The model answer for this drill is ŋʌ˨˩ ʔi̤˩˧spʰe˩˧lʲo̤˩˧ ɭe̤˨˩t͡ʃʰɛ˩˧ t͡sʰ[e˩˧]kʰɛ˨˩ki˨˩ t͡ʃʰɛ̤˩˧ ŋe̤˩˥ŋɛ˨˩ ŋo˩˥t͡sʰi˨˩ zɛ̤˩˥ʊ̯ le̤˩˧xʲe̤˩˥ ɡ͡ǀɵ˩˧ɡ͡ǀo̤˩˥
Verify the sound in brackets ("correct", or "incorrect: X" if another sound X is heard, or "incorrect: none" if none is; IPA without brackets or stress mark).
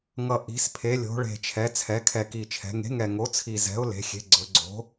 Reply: incorrect: ɛ˩˧